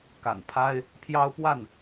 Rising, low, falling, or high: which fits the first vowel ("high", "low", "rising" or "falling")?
low